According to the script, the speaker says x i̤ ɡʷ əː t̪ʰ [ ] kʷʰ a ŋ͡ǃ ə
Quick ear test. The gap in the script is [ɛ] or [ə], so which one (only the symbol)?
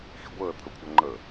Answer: ə